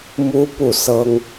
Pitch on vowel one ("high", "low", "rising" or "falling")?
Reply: high